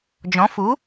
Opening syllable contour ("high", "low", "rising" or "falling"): rising